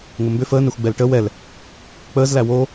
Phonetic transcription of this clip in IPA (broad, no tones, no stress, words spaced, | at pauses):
ŋʷəmbʏ fəːnɛxʷ ɡ͡bɛlʈə wɛl | k͡pəːzlæ wo